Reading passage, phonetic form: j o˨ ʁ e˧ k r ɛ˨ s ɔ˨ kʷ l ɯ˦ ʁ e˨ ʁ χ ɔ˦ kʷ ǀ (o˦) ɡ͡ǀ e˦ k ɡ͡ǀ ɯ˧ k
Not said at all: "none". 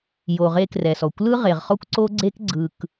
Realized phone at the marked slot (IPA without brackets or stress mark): o˦